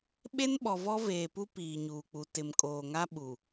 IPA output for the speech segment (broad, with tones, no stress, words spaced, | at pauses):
ɓe˦nɓɔ˨vɔ˦veː˨ pu˦piː˨ɲuː˨k͡pu˨ tɪ˨mkʼoː˨ŋa˦ ɓu˨